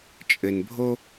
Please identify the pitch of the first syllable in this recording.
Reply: low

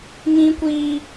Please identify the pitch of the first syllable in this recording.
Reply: high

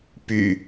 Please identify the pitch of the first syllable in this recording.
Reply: low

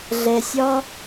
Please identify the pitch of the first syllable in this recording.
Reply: low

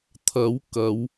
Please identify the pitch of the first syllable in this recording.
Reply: rising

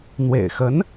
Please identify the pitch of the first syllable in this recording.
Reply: low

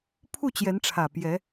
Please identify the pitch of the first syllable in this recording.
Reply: falling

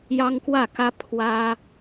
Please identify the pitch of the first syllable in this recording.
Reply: high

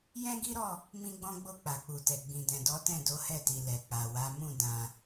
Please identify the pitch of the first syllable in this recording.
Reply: high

